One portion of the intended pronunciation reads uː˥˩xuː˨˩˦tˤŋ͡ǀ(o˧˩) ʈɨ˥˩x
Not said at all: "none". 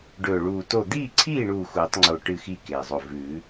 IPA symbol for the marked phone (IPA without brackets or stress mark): o˧˩